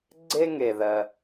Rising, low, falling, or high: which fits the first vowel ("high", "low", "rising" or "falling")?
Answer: high